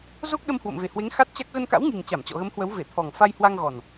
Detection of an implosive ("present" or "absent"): present